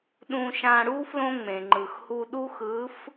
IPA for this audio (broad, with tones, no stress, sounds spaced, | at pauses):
ɗ ũ˧ ʃ ã˧ ɽ u˥ f l õ˥ ŋ͡m ẽ˩ ŋ͡ǃ ɯ˩ x h u˧ ɗ u˥ x ɯ˧˥ f